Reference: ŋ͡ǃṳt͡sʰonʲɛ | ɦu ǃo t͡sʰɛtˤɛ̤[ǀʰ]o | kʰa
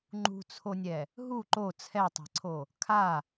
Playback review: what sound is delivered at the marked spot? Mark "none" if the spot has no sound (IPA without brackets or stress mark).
ǀʰ